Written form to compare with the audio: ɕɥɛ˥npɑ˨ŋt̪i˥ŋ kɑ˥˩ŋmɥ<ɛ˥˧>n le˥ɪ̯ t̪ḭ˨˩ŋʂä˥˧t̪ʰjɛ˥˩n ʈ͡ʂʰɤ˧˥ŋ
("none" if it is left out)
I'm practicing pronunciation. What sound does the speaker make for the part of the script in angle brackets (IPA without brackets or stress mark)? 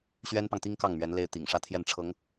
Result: ɛ˧˥